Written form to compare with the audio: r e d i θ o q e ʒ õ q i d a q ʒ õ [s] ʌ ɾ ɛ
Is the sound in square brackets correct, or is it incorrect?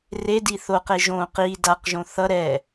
incorrect